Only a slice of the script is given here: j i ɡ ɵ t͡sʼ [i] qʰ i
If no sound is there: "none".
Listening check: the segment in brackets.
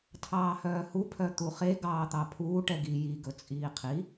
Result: iː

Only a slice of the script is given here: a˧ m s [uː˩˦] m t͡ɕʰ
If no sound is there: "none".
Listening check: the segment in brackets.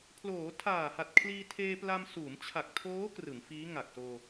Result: uː˩˦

